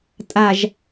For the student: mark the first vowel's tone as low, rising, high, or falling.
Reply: low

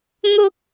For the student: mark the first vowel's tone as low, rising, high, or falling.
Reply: high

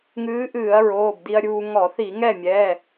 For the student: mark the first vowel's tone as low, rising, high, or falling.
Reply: rising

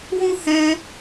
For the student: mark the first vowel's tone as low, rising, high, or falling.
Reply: high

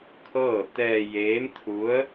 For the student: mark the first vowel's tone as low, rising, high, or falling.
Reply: falling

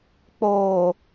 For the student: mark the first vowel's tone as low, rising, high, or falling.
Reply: low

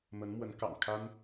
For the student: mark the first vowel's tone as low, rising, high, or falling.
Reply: rising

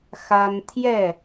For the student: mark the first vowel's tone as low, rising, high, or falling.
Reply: high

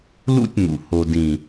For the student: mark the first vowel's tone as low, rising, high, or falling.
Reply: high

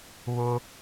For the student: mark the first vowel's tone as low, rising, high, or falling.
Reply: high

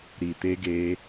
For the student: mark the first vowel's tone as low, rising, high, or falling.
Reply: low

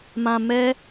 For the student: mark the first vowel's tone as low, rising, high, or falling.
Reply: low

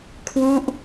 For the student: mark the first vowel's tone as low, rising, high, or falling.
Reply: falling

